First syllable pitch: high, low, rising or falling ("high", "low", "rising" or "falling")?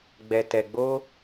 low